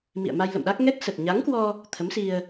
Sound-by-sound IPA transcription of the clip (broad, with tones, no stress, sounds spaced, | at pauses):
m ḭ˧˨ ə̯ m a˧ j l ə̰˧˨ m ɗ a˦˥ k̚ ŋ ɛ˦˥ k̚ s ə˨˩ t̚ ɲ a˨˦ ŋ k w ɔ˧ | t̪ʰ ə˨˦ m s i˧ ə̯